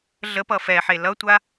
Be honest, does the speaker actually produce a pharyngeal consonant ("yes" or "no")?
yes